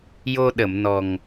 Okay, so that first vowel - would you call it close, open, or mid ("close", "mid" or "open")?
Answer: mid